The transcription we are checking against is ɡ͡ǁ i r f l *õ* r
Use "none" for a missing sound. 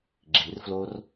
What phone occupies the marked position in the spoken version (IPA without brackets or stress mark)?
o